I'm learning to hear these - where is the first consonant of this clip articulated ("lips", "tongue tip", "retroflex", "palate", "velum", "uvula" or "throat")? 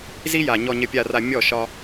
tongue tip